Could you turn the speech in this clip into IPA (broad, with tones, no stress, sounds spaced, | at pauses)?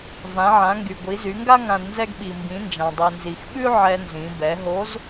v ã˩˧ ʕ ã˩˧ ŋ ɡ y˩ ɡʷ i˩˧ z y˩˧ ŋ ɡ a˥ ŋ ã˧ d n z ɛ˥ ɡ ɓ i˩ m b ĩ˩˧ n d͡ʒ ã˩ dˤ i˩ n z i˩ x ɓ ʉ˥ ʕ ɛ˧ n z ĩ˩˧ b ɛ˩˧ ɦ o˧˥ z